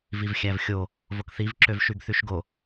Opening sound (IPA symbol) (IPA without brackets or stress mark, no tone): v